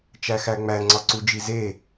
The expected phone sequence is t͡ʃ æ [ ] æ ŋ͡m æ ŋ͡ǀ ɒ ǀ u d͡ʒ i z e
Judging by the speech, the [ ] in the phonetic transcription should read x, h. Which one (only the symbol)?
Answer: x